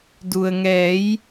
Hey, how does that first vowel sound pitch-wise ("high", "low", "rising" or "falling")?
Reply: low